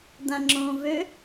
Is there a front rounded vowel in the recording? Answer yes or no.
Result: yes